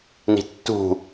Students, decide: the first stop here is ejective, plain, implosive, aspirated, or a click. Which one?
plain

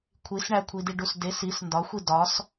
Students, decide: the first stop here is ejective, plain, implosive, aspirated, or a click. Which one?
aspirated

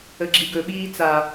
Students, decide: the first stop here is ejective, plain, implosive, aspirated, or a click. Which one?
click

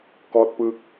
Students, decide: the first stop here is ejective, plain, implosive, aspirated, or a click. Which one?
plain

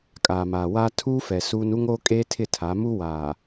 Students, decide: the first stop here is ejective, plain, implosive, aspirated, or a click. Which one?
ejective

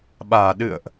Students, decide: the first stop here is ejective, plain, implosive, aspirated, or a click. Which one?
implosive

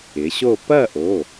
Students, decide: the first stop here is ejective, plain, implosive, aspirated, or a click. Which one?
plain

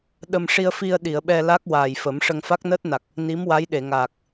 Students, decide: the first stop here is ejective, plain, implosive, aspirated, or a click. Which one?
implosive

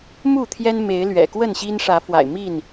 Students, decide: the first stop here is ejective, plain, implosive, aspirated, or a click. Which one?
aspirated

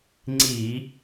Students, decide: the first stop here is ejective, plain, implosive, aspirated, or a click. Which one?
click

